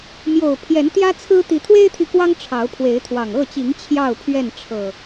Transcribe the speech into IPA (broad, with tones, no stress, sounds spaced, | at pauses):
m j o˨˩ ʊ̯ pʰ j ɛ˨˦ n t̪ j ä˦ t͡sʰ ɹ̩˦ t̪ i˨˦ t̪ʰ w e˦ ɪ̯ t̪ʰ i˨ k w ɑ˦ ŋ ʈ͡ʂʰ ɑ˨˦ ʊ̯ pʰ w e˨˦ ɪ̯ t̪ʰ w ɑ˨˩ ŋ ɤ˥˨ t͡ɕ i˨˦ ŋ t͡ɕʰ j ɑ˥˨ ʊ̯ pʰ ɥ ɛ˥˨ n ʈ͡ʂʰ ɤ˨˩